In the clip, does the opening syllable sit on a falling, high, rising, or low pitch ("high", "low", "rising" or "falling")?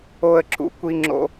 high